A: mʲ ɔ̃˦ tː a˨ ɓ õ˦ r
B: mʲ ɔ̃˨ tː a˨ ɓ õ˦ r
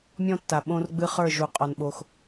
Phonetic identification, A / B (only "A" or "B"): A